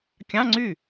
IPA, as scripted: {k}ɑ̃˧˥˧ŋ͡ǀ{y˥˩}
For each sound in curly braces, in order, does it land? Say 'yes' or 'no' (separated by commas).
no, yes